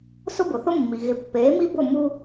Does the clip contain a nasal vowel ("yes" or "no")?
no